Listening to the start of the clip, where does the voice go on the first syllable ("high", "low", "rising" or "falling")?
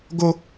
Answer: high